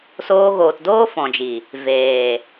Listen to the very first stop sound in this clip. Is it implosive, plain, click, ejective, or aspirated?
plain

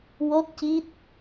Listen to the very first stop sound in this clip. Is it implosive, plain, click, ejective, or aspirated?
plain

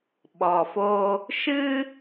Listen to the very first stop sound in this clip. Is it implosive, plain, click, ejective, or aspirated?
implosive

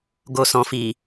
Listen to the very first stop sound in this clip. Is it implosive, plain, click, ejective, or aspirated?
plain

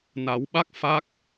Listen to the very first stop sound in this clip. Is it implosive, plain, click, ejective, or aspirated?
implosive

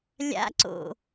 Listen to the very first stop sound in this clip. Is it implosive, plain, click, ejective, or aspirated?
click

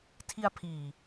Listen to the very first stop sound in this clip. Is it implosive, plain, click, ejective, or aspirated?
aspirated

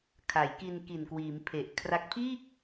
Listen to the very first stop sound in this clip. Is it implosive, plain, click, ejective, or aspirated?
aspirated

